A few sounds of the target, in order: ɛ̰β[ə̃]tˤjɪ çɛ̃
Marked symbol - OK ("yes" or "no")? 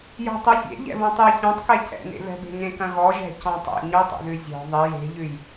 no